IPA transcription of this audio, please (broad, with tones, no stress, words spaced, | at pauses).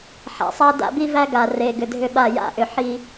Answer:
ħa̰˨sˤa˦ da̰˦bi˦væ˦ɡa˨ re˨ɡʏ˨dʱʏ˦ɓa˦˨ ja̰˦ʔʏ˨ħi˦